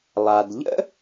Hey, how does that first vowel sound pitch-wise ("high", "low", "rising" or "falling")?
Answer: low